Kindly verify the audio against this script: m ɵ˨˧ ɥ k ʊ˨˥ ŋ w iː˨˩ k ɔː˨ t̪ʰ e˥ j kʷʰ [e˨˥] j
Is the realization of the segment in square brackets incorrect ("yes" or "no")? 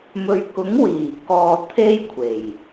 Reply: yes